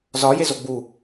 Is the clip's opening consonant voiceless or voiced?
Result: voiced